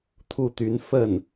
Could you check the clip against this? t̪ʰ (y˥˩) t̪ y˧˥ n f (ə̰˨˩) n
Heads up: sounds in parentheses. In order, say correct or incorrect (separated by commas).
incorrect, incorrect